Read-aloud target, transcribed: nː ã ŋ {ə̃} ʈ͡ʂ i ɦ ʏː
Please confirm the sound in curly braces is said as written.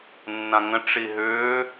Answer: yes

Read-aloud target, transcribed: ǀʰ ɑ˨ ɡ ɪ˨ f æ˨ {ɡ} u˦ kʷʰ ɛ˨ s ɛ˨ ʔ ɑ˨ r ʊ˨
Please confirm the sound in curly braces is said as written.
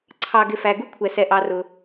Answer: yes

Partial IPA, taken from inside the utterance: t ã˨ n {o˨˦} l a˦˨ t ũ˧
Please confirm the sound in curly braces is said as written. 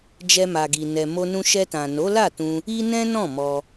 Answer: yes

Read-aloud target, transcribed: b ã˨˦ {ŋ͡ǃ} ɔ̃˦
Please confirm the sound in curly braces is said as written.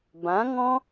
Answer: no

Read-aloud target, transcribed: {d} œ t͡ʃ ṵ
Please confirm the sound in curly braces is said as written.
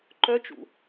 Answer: no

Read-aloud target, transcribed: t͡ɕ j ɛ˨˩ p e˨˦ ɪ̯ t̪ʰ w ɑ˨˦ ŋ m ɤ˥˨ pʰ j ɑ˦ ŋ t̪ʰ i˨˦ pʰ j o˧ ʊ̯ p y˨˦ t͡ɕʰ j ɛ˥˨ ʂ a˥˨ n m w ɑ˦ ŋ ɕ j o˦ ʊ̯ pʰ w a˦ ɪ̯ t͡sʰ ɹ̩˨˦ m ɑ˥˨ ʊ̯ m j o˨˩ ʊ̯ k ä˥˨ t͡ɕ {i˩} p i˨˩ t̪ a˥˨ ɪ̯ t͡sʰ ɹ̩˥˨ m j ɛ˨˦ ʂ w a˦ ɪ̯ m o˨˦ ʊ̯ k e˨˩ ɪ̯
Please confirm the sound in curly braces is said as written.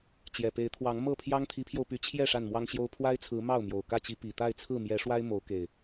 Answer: no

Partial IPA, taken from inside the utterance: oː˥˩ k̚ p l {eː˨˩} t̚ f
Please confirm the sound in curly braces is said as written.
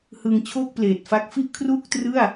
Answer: yes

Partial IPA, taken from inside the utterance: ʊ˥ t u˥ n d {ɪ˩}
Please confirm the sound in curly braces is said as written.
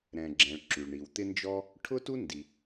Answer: no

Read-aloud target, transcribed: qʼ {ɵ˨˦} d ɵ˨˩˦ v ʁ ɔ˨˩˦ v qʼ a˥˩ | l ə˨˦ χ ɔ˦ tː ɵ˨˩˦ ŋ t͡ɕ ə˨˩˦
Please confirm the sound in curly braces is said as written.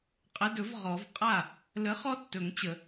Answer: no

